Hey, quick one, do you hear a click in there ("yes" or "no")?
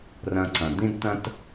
yes